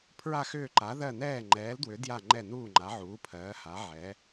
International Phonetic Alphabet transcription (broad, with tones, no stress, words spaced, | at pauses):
pʰɹa˦˨xʏː˦˨ǃa˨˦ðɜ˦˨ nɛː˦˨ŋ͡ǃɛː˨˦ldwʏ˨˦ dja˦˨ ŋ͡ǃɛ˦˨nuː˦˨ ŋ͡ǃa˨˦ʕuː˨˦pʰɜː˨˦ ha˨˦ ʕɛ˨˦